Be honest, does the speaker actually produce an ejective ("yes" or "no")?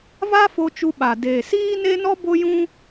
no